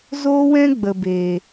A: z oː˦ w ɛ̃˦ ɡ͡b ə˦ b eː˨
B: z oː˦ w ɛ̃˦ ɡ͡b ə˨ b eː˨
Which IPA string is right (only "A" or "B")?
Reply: B